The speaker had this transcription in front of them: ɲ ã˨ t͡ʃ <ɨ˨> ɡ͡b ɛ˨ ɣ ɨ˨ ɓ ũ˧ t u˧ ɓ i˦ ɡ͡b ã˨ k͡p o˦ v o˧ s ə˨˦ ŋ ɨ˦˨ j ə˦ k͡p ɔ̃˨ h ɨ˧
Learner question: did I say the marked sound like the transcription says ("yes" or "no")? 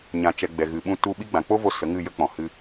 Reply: no